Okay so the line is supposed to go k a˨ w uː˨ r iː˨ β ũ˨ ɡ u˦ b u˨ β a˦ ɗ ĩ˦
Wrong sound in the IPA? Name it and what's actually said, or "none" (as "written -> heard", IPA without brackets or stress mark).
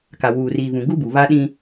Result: none